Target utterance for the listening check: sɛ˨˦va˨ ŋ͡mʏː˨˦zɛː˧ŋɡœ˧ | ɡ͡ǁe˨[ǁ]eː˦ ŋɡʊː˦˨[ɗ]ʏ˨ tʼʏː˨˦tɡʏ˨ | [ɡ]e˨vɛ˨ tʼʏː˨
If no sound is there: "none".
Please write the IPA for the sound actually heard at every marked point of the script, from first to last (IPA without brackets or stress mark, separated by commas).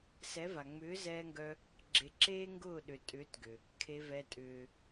ǁ, ɗ, kʰ